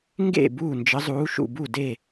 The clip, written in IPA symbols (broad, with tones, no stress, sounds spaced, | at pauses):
ŋ ɡ ḛ˥˩ b uː˥˩ n d͡ʒ ə˨˥ zˤ uː˨˥ ʃ ṵ˥˩ b u˥˩ d e˥˩